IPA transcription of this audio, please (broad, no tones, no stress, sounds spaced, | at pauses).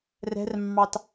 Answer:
r ɛ̤ r mː ɑ t